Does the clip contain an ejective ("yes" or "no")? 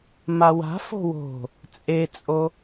yes